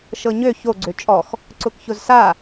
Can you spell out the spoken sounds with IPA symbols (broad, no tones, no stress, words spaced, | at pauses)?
ʃɤɲø ço ɡ͡ǀøt͡ʃʼɔx | ǀʊkçʊzsa